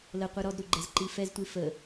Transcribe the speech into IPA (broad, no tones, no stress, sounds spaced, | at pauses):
l ə qʷ ɯ ɾ ɔ d ɾ u ɡ͡ǃ ɛ z ǃ i f ɛ z tʷ i f ə